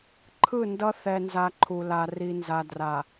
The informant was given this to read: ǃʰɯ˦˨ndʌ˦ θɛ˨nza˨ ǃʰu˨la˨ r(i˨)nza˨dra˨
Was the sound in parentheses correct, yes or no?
yes